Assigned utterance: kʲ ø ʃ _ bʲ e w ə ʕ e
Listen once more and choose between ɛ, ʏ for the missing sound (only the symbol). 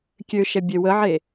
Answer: ɛ